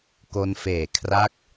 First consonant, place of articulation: velar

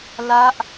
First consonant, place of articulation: alveolar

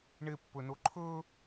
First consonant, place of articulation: retroflex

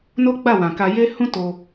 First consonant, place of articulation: alveolar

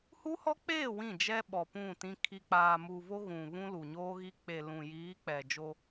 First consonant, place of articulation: glottal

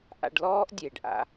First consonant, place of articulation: glottal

